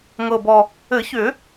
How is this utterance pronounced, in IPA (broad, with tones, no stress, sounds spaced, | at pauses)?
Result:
ŋ ɤ˨˩ b ɔ˨˩ | ɘ˨˩˦ ç ʏ˨˩˦